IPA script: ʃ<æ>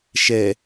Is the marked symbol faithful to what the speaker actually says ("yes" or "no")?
no